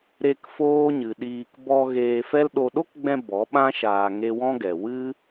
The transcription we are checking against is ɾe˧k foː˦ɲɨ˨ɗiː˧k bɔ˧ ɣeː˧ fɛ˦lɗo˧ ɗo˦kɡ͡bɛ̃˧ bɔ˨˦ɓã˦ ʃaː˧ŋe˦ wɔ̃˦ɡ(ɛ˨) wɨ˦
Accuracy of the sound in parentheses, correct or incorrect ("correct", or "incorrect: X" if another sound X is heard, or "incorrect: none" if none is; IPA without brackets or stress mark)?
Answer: correct